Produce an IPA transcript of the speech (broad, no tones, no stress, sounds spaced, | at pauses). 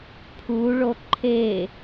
pʰ u ɭ o ǃʰ e